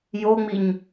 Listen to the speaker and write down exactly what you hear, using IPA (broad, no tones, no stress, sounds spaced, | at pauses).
j o ŋ͡m i ɲ